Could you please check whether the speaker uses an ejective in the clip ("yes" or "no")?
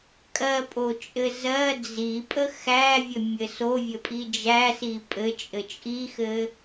yes